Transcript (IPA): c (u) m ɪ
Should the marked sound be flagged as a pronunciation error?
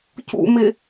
yes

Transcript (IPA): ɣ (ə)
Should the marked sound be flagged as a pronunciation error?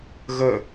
no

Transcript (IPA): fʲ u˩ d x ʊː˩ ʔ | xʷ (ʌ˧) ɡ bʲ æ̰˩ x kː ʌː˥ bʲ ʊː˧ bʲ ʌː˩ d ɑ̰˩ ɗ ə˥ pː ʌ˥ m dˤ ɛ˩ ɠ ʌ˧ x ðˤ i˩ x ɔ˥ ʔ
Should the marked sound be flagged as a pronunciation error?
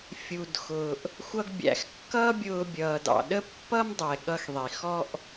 no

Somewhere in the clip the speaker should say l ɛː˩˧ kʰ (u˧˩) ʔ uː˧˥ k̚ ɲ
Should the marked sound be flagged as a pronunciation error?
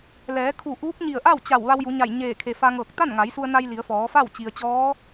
no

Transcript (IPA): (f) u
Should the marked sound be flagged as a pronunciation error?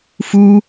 no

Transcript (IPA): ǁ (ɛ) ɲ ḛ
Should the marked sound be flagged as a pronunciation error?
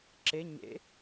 yes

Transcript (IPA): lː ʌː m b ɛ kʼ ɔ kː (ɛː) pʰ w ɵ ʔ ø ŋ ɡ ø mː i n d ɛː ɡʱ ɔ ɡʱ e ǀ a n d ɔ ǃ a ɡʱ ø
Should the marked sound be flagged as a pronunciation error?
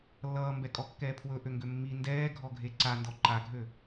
no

